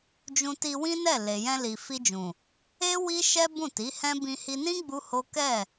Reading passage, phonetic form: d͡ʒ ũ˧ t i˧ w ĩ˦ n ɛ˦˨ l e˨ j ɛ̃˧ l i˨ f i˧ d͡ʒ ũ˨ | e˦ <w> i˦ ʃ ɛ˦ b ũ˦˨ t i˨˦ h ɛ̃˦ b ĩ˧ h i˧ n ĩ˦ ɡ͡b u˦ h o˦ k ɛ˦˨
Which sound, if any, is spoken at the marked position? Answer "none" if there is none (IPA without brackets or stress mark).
w